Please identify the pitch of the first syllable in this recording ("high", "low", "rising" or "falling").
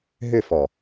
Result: falling